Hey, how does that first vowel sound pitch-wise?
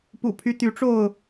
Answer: low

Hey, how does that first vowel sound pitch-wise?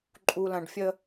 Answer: low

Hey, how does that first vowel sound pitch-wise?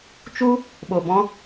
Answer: high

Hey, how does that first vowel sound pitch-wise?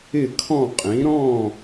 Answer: falling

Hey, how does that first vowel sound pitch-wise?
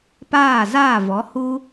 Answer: falling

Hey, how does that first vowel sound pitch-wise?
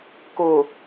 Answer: low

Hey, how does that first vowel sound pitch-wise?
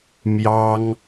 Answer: high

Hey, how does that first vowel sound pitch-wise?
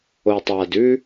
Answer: low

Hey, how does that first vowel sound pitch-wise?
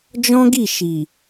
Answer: high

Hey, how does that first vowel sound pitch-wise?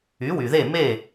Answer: rising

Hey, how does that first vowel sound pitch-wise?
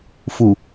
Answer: low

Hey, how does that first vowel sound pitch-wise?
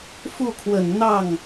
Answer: falling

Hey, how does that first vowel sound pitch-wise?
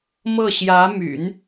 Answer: falling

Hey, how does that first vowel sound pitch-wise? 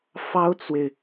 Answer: high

